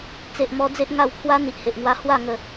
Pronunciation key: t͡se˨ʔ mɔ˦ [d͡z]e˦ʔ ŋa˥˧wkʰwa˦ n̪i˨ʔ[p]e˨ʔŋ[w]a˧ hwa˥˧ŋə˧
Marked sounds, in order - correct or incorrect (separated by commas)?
correct, incorrect, correct